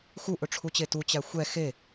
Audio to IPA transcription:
xu ʔɵʈ͡ʂʰut͡ɕetu t͡ɕæxʷɛ xe

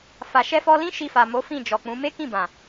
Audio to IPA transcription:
fa˨ ʃɛ˧fɔ˧lĩ˦ ʃi˧fa˨mo˨˦ fĩ˦˨d͡ʒɔ˨k͡pũ˨˦ me˦kĩ˦˨bã˨

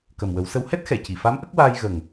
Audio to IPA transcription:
kə˨˩mwə˨˩˦wsə˧˥w hɛ˦˥t̚xɛ˨˩˨ci˨˩˨fa˧˥m ʔə˦˥k̚waː˧j ɣə˨˩ŋ

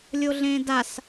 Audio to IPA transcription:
lʲoɮẽːdas

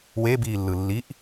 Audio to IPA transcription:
webiːlːɯ lːiʔ

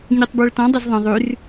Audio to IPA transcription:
ɲutˤbwəɭtɔ̃ dˤəzðˤə̃ ðˤʉr

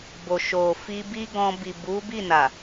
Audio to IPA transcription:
bo˨ʃo˨ fi˧bi˦ɡɔ̃˧ bi˨bu˨˦bi˦˨na˨

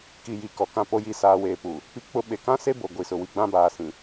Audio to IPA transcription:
ki˨ ji˨kɔ˨ kã˦˨po˦ ji˨saː˨weː˨ pu˨ | pi˦k͡pʊ˦ ɓe˨kã˦ se˦bo˨ ɡʷi˨sʊ˨wi˨ ɡ͡bã˦baː˨sĩ˨

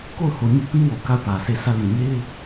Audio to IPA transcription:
ko˦˨ʊ̯ho˨ɲʊ˦ʔ pĩ˦wo˨ ka˦˨ʊ̯pä˨se˦˨ sä˦˨lĩ˨ ɲe˦ɪ̯

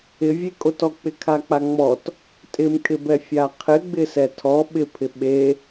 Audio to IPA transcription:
ɪvʲekʼotɔ k͡pɪkʰak͡paŋ͡mɔt | tʼɪmkʼɪbɛ fʲaqʰɪɡ͡bɪ sɛtʰɔ ɓɪpʰɪ ɓe

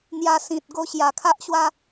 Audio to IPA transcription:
n̪ja˧sĩ˨t̚ ɡo˧ɕja˨˩kʰa˦ʔɕwa˦

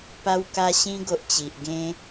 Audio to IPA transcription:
pa˧wka˧ ɕĩ˧ɡo˨ʔ t͡ɕi˨ʔ ɡẽ˧

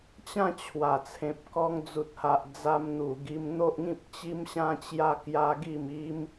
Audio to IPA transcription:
t͡ɕã˥˧t͡ɕʰwa˨˩ t͡sʰẽ˨p̚kɔ˧ŋd͡zu˨t̚ha˨ʔ d͡za˧mn̪u˨˩ɡi˧m n̪o˦ʔŋĩ˦p̚ t͡ɕi˦mɕã˦t͡ɕja˦ kja˦ɡi˥˧m i˦m

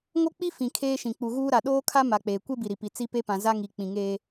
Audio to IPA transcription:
ŋo˦k͡pi˦ fĩ˨kʰeː˦ʃĩ˨ k͡pu˨ɣuː˦ ɾa˨ ɗoː˦kʰa˦ ma˨k͡peː˨ kʷe˦bi˨ɾi˨pi˨ t͡si˦ pe˦pã˨ za˦ŋi˨ k͡pĩ˨ŋeː˦

